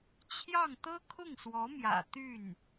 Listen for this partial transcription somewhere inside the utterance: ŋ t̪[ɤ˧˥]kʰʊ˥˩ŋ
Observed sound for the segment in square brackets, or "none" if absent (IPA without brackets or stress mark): ɤ˥